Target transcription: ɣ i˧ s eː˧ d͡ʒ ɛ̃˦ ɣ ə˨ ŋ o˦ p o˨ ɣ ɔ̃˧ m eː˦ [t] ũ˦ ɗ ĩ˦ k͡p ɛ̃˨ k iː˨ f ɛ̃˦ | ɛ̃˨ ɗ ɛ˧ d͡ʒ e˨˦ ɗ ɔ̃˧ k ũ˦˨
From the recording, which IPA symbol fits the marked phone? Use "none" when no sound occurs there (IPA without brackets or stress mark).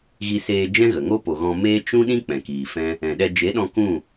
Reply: t͡ʃ